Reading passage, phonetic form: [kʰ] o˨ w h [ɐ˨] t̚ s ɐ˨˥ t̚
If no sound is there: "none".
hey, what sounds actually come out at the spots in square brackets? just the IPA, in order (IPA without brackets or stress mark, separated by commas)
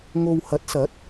ŋ, ɐ˨˥